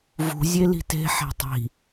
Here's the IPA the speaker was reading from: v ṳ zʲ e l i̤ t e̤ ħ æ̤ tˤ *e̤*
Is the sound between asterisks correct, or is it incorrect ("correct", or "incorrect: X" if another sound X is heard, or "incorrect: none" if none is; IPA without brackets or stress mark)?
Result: incorrect: i̤